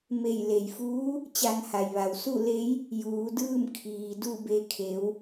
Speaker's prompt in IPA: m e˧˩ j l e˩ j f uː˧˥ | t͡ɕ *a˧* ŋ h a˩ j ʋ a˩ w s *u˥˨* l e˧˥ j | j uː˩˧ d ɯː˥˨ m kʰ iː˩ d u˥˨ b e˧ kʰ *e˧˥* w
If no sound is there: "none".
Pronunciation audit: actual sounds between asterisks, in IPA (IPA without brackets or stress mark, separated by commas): a˧, u˥˨, e˩˧